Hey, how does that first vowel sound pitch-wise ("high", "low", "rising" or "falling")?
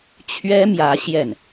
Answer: high